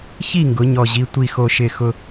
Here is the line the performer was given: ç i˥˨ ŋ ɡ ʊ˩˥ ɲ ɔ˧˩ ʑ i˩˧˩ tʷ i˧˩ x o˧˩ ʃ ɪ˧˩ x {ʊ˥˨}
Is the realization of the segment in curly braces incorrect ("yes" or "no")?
yes